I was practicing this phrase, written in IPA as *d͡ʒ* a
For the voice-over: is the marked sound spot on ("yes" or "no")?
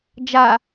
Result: yes